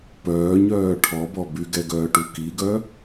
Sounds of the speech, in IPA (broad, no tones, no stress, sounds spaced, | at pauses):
p œː ɲ œː ʈʰ ɔ b ɔ b y ɡ ɛ ɡ œː ʈ u k i ɡ œ